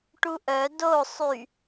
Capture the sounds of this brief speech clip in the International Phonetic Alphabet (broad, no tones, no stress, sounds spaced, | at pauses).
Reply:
ʈ u ʔ œ d o sˤ y